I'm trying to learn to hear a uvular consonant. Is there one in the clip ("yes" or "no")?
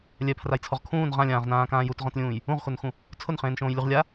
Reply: yes